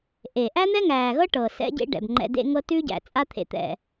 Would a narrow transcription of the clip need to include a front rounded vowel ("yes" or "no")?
no